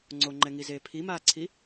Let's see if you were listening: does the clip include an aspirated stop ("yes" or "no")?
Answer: yes